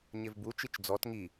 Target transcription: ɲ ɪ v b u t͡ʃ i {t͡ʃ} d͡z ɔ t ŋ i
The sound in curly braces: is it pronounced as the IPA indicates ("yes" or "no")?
yes